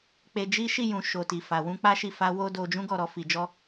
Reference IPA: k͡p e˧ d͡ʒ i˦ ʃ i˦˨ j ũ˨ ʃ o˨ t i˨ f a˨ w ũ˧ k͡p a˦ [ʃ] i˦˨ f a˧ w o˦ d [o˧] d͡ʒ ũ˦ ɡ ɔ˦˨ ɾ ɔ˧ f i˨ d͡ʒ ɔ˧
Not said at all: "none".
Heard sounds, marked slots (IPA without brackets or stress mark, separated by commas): ʃ, o˧